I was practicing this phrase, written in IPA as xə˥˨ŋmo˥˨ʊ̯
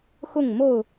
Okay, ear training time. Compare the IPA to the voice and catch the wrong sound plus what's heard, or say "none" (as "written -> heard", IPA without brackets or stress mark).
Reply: ə˥˨ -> ʊ˥˨